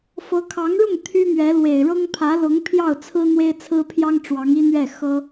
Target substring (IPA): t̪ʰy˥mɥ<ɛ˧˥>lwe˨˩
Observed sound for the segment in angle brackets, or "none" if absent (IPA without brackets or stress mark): ɛ˧˥